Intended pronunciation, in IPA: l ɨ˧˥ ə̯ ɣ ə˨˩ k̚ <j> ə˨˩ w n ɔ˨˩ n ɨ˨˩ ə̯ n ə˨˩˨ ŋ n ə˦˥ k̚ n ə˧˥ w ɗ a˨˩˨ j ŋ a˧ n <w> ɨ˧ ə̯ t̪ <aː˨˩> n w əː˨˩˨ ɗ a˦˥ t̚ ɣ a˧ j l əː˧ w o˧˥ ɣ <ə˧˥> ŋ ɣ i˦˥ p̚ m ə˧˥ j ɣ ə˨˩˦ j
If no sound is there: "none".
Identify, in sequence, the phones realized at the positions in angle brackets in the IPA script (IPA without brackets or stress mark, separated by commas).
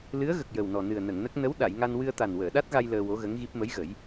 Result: j, w, a˨˩, ə˧˥